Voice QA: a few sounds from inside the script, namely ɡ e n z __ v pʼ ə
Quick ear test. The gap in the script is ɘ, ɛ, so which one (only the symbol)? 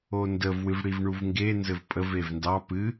ɘ